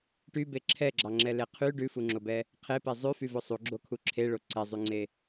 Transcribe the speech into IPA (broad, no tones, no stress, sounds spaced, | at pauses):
ʈ y b e ǁʰ ɛ ɡ͡ǁ ɑ ŋ͡ǁ ɛ l e qʰ y ɖ ʉ f u ŋ͡ǁ o b ɛ | qʰ e p e zˤ ʉ f y v o sˤ u ɡ͡ǁ o kʰ u ǁʰ e ɭ o ǀ ɛ zˤ y ŋ͡ǀ e